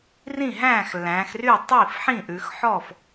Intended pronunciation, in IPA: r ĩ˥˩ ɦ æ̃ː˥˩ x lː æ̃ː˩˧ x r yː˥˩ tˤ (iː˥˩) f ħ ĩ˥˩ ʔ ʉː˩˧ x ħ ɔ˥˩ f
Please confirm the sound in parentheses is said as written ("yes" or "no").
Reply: yes